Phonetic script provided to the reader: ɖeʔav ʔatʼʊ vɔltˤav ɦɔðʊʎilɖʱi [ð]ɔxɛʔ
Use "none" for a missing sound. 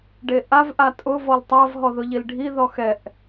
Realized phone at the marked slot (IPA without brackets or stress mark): ð